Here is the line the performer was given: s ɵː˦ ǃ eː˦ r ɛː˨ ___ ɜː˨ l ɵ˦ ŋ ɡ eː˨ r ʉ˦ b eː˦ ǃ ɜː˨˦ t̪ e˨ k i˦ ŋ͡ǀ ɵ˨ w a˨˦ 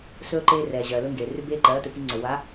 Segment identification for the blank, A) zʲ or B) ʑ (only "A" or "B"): B